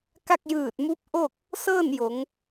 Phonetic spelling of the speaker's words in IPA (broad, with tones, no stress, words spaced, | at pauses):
ka˥˨k̚jɯː˧˩t̚mu˧˥p̚ʔo˥˨k̚ | sɤː˥˨njo˩˧ŋ